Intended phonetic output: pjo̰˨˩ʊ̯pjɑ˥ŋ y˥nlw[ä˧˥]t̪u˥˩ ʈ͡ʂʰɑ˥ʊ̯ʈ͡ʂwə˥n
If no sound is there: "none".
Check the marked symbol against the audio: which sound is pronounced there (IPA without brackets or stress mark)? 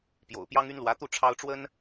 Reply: ä˧˥